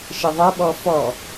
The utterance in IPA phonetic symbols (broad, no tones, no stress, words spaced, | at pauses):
ʃɪðˤɐɓɔ fɔ